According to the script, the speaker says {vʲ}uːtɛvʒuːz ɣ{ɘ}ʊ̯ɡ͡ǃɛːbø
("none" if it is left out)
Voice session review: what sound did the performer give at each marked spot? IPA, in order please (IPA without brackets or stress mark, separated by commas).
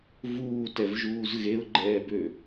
v, e